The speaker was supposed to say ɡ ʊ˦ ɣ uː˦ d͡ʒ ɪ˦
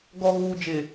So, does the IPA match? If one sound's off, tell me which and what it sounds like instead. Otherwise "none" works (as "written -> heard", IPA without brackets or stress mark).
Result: ʊ˦ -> ɔ˦